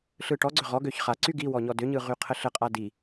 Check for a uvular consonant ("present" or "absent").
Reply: present